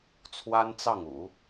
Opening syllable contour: high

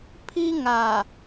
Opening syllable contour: high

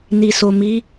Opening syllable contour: low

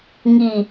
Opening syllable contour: low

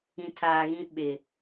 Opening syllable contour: low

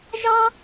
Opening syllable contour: high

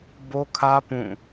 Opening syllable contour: high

